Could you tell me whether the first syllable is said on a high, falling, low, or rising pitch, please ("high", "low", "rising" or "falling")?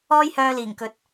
high